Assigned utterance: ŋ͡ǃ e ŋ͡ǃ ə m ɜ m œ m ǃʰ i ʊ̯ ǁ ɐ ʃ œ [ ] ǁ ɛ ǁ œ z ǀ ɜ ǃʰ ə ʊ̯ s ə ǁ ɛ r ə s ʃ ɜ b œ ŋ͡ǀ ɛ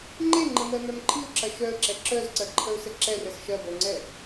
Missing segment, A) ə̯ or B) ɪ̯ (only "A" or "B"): A